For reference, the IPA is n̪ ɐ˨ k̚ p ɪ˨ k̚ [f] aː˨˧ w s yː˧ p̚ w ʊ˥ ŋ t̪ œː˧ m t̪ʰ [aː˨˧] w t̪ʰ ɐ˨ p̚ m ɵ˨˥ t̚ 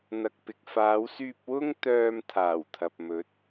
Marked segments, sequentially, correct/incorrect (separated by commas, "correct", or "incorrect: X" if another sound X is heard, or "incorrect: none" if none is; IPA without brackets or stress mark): correct, incorrect: aː˨˩